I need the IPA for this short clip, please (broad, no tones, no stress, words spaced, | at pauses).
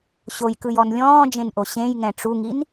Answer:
ɕojkɯjɔn lʲɔ̃ːd͡ʒẽnʔo ɕẽjŋɛ̃ ʈ͡ʂuŋin